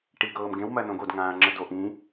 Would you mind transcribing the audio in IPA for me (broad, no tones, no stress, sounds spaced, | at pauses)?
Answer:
ʈ i ɡ ɤː m ɡ ẽ w m ɜ n õ ɡ o d ŋ ãː ŋ͡ǁ ə d o ʔ ĩ